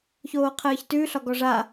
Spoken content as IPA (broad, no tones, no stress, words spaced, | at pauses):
çoːqʰəːçtʉ ɬɒɡɔʐa